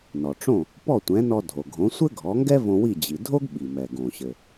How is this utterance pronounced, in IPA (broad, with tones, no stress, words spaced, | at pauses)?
nɔ˩ʈ͡ʂõ˥˩ | pɔ˥˩tʷɛ̃˩˥nɔ˧dʱo˩ ɡʱõ˩˥sʷɘ˥ɡʱɔ˩˥ŋɡɛ˥ võ˧wi˥˩ d͡ʑi˩ dʱo˥ɡɓi˩mɛ˩ ɡõ˩ɕɘ˩